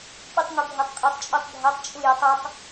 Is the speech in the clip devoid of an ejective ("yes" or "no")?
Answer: no